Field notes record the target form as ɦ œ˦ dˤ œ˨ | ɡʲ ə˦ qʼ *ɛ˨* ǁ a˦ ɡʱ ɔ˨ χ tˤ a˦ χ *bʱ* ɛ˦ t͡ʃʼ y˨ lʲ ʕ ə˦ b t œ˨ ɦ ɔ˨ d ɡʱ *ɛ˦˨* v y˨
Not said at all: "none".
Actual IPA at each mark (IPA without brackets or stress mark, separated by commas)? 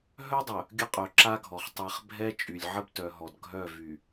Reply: œ˨, bʱ, œ˦˨